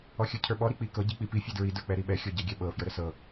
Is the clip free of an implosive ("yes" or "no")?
no